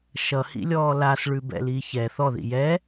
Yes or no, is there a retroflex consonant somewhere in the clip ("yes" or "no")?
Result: yes